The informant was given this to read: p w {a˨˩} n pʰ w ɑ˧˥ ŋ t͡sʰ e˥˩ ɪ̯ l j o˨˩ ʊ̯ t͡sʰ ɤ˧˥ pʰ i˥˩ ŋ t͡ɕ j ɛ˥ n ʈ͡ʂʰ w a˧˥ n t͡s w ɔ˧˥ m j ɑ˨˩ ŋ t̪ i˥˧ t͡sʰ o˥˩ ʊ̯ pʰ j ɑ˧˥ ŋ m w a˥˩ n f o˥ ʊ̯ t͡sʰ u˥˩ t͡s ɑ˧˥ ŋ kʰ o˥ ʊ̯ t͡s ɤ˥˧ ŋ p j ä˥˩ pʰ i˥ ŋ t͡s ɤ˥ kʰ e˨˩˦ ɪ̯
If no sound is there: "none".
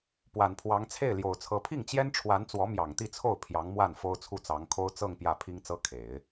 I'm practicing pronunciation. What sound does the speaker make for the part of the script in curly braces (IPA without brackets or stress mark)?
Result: a˨˩